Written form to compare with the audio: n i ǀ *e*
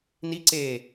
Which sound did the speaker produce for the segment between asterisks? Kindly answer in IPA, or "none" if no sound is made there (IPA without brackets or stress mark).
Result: e